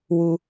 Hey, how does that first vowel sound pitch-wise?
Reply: low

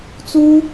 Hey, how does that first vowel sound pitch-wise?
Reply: high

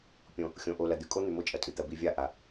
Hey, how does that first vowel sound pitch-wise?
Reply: low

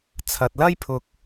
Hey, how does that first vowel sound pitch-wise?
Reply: low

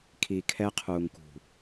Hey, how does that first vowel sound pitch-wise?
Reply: low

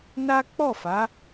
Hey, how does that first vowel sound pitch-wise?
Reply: high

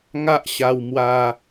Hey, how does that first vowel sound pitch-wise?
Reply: high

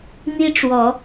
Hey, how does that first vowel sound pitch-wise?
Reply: high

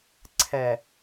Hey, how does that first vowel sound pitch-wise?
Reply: low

